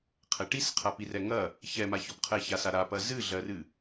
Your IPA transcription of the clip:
qʰ ɛ ʈ i s qʰ a p i r ɛ ŋ ɐ | ç ɛ m a ç ɔ p qʰ ɛ ç a s a ɾ a p ɐ z ɨ ɮ ɜ r ɨ

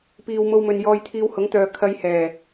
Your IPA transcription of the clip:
p iː˨ w m o˧ w m ɵ˨ n j ɔː˧ j t̪ʰ iː˧ w h ʊ˨˥ ŋ t̪ œː˨ kʰ ɐ˧ j h ɛː˨˩

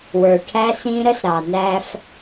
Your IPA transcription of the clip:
w ə˞˨ ʈʰ æ˦ s ĩ˦ ɾ ə˦ s ɾ ɑ˨ n æ˦ f

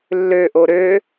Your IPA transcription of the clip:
lː ø ʔ o ɾ ø

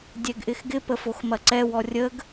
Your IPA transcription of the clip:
dʲ ɛ ɡ ʔ ɪ x ɡ ɪ p ə f o x m ɐ ǀ ɛ w ɔ rʲ ə ɡ

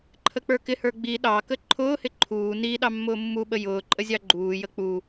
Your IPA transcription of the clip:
ǃʰ ə k͡p ə˞ k ɪ h ə˞ ɡ͡b i ɗ ɑ k ə ǃʰ ʊː h ɪ ǃʰ uː n i ɗ ɑ mː ʊː mː u ɓ ə j ʊː ǃʼ ə zʲ ɑ ɡ͡ǃ uː j ə k͡p u

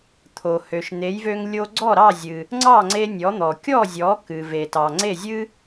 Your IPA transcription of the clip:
t̪ʰ o˩ h ø˩ ʃ n̪ e˩˥ j v ø˧ ŋ lʲ o˧ ɡ͡ǀ ɔ˥˩ ɾ ɑ˥˩ zʲ ɨ˩ | ŋ͡ǀ ɑ˥˩ ŋ͡ǀ e˧ nʲ ɔ˩˥ n̪ ɔ˩ kʲ ɔ˥˩ zʲ ɔ˩˥ k ɨ˩ v e˩ t ɑ˩ ŋ͡ǀ e˥˩ zʲ ɨ˥

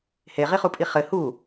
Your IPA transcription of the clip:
h e ʁ i χ u pʼ i χ ɘ h u

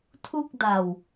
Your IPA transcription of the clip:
tʰ u˥˩ k̚ d a˧ w

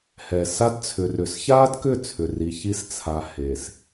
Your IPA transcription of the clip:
h ɛ˨ s a˦ d t͡sʰ ʏ˨ r ʏ˨ s ç a˦ d k ʏ˦˨ t͡sʰ ʏ˨ r i˨ ç i˦ s t͡sʰ a˨ h e˨ s

